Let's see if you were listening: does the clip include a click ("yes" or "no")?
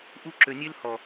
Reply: yes